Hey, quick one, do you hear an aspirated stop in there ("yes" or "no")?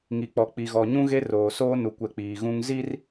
no